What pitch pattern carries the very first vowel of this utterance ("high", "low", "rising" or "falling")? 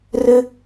high